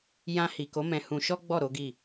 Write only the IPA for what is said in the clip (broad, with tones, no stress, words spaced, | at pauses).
jã˧hi˨ko˨˦ mɛ̃˧hũ˧ʃɔ˦ɡ͡bɔ˦˨ ɾo˨˦ɡi˦˨